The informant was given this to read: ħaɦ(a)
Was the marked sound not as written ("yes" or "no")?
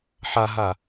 no